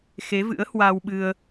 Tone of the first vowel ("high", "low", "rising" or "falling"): rising